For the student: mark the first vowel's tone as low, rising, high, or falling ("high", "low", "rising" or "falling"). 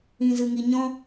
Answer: low